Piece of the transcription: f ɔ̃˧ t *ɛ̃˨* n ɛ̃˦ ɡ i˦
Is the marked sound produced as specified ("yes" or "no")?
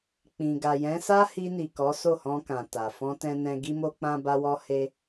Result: no